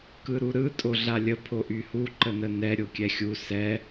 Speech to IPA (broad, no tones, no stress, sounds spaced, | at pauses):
k ɯ ɾ u ɾ ɯ tʼ o ɮ a lʲ ə pʰ o ʔ y h u ǃ ə n ə n ɛ ɾʲ o kʲ ɛ xʲ u s ɛ